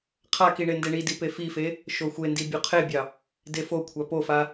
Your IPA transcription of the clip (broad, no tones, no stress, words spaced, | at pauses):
qʰaki ɳendeɳidi pefife | ʃoxʷendi bʲoqʰebʲɑ | defokʷʰa pofa